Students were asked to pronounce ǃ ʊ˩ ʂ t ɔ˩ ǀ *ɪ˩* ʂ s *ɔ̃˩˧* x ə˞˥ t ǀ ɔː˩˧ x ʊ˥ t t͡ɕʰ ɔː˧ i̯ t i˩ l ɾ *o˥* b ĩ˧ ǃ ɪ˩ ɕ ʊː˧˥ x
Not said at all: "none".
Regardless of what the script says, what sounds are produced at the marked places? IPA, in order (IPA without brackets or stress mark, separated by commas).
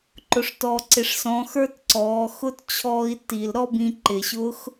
ɪ˩, ɔ̃˩˧, ɔ˥